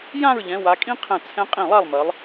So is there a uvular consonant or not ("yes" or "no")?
yes